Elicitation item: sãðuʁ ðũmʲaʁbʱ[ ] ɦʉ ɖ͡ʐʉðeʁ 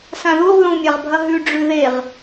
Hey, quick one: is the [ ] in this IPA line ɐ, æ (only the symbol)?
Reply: ɐ